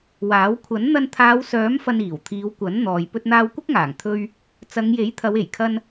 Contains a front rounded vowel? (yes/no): yes